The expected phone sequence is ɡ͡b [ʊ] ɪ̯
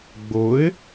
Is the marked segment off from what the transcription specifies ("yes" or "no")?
no